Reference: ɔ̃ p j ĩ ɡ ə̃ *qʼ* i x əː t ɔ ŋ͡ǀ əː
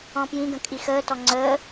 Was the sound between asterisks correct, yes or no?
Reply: no